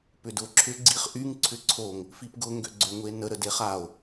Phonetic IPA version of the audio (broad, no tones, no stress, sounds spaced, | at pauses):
p ʏ d ʊ ǁʰ ʏ ɡ͡ǀ i χ ʔ y ŋ ǀʰ ʏ ǀʰ o ŋ | f i p ɡ ʊ ŋ ɡ ø ɡ͡ǀ ø ŋ ʊ e̯ n ə ɾ ə d e χ a o̯